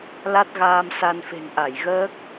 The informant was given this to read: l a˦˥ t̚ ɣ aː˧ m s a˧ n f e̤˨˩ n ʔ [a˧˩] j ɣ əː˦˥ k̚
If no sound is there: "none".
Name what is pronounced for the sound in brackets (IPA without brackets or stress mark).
a˧˩